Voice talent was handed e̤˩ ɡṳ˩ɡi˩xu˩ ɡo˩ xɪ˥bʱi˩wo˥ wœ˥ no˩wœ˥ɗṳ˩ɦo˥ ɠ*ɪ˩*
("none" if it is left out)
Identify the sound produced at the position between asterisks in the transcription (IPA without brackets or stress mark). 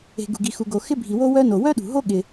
ɪ˩